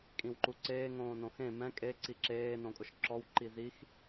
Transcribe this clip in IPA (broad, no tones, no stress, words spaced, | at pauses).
kʼĩwǃuǀeː ŋõːnõxẽ mɛ̃ kʼe ǀiǁeː nõkʼʊʃǁɔw ǃizix